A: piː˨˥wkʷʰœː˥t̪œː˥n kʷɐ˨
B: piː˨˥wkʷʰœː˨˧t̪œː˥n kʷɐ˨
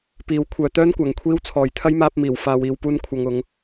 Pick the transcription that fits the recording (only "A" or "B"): B